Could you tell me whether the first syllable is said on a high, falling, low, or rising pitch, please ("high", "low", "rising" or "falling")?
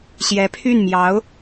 rising